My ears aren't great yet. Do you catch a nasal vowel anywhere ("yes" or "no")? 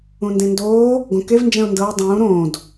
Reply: yes